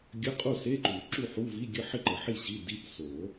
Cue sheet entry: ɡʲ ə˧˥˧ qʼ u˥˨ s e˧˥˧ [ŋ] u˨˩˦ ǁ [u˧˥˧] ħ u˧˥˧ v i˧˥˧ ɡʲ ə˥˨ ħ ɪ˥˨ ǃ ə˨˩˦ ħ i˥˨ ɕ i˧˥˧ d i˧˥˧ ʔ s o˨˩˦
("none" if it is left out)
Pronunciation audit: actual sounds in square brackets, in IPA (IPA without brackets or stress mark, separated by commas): ǃ, u˥˨